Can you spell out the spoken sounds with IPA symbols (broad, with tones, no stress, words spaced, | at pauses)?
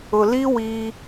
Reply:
ʊ˨li˦wiː˦